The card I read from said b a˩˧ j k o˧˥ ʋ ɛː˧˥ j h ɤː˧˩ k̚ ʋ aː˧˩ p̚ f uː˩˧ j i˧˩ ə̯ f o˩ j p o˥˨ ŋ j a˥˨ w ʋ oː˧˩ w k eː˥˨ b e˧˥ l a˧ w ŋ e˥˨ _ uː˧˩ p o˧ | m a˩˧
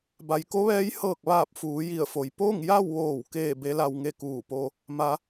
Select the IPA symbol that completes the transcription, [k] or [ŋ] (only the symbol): k